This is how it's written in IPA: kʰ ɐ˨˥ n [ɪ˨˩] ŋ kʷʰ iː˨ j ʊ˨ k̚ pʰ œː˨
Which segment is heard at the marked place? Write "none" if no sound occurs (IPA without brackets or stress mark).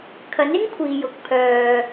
ɪ˥